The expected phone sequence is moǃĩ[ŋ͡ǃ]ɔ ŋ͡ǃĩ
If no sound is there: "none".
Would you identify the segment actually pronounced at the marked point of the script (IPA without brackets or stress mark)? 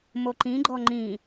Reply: ɡ͡ǃ